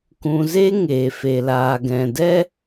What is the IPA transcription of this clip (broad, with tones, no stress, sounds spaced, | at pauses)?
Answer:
k ũ˨ z e˦ ŋ eː˨ f e˨ l aː˨ ɡ ɛ̃˨ d ɛ˦